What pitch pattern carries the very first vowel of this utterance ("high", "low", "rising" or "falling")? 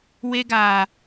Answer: high